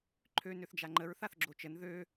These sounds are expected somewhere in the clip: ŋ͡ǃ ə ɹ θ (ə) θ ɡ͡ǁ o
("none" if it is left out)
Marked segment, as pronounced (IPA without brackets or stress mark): a